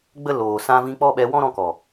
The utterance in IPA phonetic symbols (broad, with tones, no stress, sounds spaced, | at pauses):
ɡ͡b ə˦ l oː˨ s ã˧ v ĩ˧ k͡p ɔ˦ ɓ ɛ˧ w ɔ̃˦ ɾ ɔ̃˧ k ɔ˨